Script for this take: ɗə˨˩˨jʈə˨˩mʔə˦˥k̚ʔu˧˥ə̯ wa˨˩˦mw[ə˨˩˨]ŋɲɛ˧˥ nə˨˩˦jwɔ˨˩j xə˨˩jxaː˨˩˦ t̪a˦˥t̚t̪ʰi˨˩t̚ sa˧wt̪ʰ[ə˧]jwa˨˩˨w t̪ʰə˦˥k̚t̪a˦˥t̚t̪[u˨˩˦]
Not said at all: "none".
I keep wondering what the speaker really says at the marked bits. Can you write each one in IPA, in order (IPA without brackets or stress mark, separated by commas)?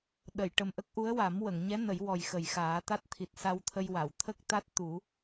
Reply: ə˨˩˨, ə˧, u˨˩˦